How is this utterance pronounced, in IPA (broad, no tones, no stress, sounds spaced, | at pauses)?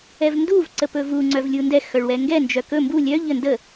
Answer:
ɛ v n d u v ǀ ə p ɵ v u ŋ͡ǀ œ v lʲ u n d ɛ x œ ɭ w ɛ ŋ ɡ ɛ n d͡ʒ œ k ɵ m b u lʲ œ ʎ ə n d ə